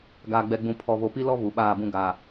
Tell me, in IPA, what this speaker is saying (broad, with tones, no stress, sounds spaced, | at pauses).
ɡ aː˨ ɡ͡b ɛ˨ ɡ͡b ũ˨ pʰ ɔ˨ β o˨ p i˦ l ɔ˦ β u˨ ɓ aː˦˨ b ũ˦ ɡ a˨